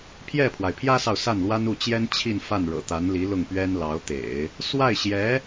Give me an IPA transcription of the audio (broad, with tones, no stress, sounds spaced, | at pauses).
pʰ j ɛ˥˩ pʰ w a˩ ɪ̯ pʰ j ä˥ s ɑ˨ ʊ̯ s a˥˩ n l w a˥ n u˥˩ t͡ɕ j ɛ˥ n t͡ɕʰ i˥˧ n f a˥˩ n ɻ ɤ̰˨˩ t̪ a˧˥ n l i˧˥ l ʊ˥˩ ŋ p ɥ ɛ˥ n l ɑ˧˥ ʊ̯ t̪ ḛ˨˩˦ ɪ̯ | s w a˥˩ ɪ̯ ɕ j ɛ˧˥